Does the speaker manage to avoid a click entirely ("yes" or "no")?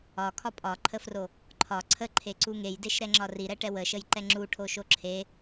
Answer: no